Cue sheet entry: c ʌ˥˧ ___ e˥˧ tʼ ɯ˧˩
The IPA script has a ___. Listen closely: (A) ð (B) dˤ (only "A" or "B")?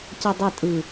B